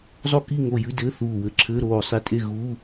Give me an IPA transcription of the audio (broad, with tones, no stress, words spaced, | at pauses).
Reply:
zˤo˥˨ ki˥˨ŋo˧˩ jɨ˧˥˧ dɘː˧˥˧θuː˧˩wɘ˧˥˧ǁʰɘː˧˥˧ ɾoː˧˩sˤi˧˩tʼe˥˨ ɣuː˧˥˧